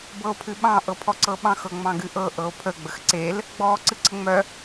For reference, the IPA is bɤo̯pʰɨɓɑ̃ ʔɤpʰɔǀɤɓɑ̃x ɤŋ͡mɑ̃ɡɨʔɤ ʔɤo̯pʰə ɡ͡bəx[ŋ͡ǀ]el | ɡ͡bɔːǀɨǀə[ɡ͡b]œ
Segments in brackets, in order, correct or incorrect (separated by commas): incorrect, incorrect